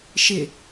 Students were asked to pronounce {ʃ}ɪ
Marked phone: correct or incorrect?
correct